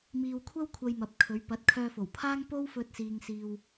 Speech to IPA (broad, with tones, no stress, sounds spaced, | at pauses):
m iː˧ w kʷʰ ɐ˥ w kʷʰ ɐ˧ j m ɐ˨ p̚ kʰ ɵ˨˧ ɥ p ɐ˨˥ t̚ kʰ œː˧ f o˨˩ w pʰ aː˥ ŋ p o˥ w f ɵ˧ t̚ s iː˨ ŋ s iː˨ w